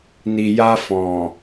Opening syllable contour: low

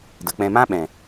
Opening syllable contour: low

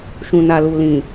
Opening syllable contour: low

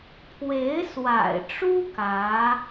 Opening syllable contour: rising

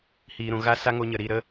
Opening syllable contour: low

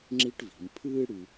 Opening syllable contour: high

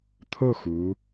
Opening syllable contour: falling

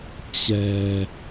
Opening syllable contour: low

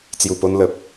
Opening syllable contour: low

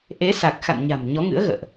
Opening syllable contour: rising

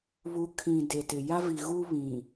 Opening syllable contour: rising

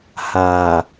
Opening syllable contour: low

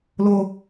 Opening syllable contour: high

